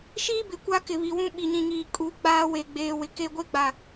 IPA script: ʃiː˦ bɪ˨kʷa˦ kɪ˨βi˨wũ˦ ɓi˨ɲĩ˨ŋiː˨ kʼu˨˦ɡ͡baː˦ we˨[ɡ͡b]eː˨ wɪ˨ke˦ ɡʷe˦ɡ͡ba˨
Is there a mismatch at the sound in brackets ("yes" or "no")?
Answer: no